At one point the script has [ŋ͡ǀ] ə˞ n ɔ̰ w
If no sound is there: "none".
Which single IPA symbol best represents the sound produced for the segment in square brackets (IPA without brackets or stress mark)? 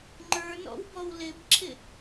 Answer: ŋ͡ǃ